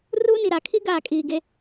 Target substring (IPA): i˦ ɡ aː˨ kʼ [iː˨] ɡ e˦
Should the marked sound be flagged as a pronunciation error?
no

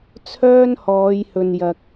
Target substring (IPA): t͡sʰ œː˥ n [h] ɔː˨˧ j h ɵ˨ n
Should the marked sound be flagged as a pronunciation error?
no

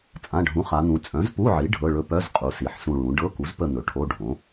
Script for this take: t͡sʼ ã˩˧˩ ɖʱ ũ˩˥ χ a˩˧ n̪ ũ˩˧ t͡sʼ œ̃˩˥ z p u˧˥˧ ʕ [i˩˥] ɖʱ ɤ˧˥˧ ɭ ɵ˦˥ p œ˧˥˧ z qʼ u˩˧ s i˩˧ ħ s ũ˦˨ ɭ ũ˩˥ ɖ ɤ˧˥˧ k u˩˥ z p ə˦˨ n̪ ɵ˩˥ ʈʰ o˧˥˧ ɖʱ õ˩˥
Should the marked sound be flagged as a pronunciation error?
no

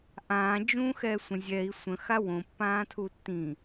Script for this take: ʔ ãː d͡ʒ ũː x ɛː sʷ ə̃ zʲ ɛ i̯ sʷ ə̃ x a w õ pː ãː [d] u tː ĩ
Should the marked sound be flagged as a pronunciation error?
yes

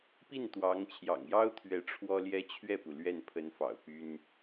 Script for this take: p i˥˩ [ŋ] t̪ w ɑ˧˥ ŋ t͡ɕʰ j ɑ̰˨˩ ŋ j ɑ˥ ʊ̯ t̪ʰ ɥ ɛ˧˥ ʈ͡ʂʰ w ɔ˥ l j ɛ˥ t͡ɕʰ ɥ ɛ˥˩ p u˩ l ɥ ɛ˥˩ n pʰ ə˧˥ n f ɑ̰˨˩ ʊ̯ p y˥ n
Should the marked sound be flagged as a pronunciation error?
yes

